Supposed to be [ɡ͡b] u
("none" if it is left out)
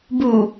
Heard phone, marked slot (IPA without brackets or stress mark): b